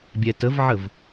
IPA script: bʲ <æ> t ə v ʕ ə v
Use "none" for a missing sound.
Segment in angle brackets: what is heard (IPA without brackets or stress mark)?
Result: ɛ